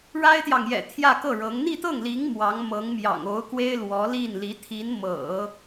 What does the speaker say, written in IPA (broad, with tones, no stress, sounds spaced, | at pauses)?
ɻ a˥ ɪ̯ t̪ j ɑ˨ ŋ j ɛ̰˨˩ t̪ʰ j ä˥˧ k ɤ˥˩ ɻ ɤ˧˥ ŋ n̪ i˥˧ t̪ ɤ˥˩ ŋ l i˧˥ ŋ m w ɑ˧˥ ŋ m ɤ˧˥ ŋ m j ɑ̰˨˩ ŋ o˧˥ ʊ̯ k w e˥ ɪ̯ l w ɔ˧˥ l i˥˩ n l i˧˥ t̪ʰ i˧˥ n m ɤ̰˨˩˦